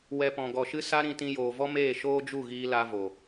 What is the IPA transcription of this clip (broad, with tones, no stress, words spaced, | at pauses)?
wɛ˧pɔ̃˨ ɡɔ˨ʃɨ˦ sa˦ɾĩ˧tĩ˧ joː˨vɔ˦meː˦˨ ʃoː˦d͡ʒu˦˨ɣiː˧ la˦vo˨